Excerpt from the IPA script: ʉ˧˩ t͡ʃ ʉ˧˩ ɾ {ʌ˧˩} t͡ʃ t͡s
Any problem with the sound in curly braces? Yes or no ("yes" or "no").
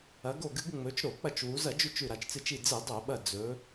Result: yes